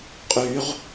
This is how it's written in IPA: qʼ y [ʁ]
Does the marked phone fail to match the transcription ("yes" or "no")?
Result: no